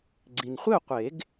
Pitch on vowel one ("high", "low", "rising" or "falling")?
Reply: low